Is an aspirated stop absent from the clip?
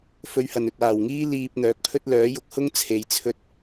no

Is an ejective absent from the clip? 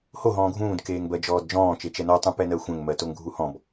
yes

